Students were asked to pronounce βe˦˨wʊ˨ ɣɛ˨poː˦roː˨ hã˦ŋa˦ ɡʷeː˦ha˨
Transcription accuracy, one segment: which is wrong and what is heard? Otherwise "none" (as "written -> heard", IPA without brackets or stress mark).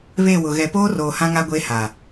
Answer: none